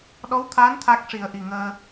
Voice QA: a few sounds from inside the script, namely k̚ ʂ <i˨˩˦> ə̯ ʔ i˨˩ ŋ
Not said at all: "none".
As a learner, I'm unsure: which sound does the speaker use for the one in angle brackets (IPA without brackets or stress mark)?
i˨˩˦